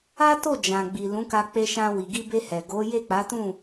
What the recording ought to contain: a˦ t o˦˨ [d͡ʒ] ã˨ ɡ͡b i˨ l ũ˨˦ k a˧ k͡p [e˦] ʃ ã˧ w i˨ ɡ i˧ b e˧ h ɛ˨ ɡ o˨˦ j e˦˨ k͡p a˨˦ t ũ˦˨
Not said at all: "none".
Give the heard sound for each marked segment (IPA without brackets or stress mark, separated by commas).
d͡ʒ, e˧